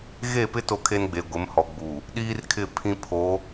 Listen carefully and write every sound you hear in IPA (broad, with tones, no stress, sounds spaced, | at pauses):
ɣ e˦˨ p ɪ˦ t o˦ kʰ e˦ n ɡ͡b e˨ ɡʷ ɪ˨˦ m h ɔ˨ ɡ͡b u˨ | ɗ iː˦ r kʰ ɪ˦˨ pʰ ĩ˦ pʰ o˨˦